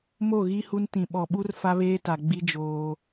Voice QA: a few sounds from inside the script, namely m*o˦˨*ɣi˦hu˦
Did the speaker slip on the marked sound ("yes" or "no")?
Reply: no